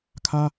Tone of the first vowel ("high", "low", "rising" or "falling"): high